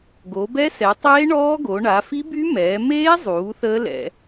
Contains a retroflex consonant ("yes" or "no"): yes